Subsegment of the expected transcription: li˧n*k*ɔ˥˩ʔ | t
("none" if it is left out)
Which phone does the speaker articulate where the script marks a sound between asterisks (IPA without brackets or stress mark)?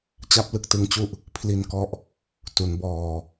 k